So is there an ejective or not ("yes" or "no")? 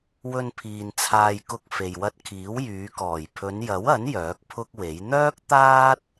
no